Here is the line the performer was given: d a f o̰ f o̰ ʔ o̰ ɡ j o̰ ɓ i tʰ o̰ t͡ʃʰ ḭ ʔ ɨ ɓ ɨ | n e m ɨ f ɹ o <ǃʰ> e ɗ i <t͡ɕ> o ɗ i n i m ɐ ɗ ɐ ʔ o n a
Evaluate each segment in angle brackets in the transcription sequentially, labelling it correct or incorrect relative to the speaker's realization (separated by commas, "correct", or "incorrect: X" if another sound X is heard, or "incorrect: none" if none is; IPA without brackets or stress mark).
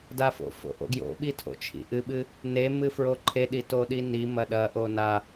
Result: correct, incorrect: t